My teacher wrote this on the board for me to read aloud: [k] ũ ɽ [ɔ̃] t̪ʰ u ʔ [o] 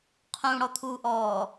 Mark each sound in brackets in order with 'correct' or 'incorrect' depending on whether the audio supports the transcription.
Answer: incorrect: qʰ, incorrect: ɔ, incorrect: ɔ

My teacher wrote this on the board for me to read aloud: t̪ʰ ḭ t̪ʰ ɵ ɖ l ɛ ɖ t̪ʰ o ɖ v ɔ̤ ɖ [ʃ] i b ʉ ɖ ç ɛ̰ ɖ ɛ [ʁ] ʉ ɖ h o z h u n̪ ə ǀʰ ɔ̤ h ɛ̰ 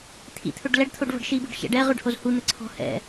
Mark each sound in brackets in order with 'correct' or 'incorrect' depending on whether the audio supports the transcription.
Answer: correct, correct

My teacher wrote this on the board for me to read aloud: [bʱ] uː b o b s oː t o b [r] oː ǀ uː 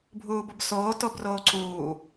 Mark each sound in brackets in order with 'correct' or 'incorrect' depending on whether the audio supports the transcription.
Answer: correct, correct

